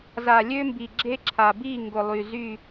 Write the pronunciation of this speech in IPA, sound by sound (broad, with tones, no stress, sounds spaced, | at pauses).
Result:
z a˨ lʲ ø˦ m b i˨ ɡ͡ǁ e˦ ǁʰ a˨ b i˦˨ ŋ ɡ ʊ˨ lˠ y˨ z y˦˨